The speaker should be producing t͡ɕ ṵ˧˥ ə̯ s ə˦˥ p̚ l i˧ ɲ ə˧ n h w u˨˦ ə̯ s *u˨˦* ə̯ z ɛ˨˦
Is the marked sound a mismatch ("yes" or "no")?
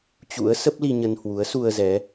yes